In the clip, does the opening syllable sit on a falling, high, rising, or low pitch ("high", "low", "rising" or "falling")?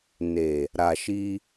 low